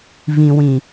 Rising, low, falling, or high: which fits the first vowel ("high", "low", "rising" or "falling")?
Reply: low